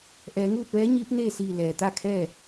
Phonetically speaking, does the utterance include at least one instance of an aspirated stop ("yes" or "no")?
yes